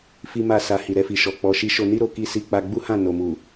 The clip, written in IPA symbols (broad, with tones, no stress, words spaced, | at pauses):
fi˦ma˦˨sa˧ hi˨ɾɛ˧fi˨ʃɔ˨ k͡pɔ˨ʃi˨˦ ʃo˧ni˦ ɾo˧ ki˦si˦˨ k͡pa˧ɡ͡bu˦hã˦˨ no˨mu˨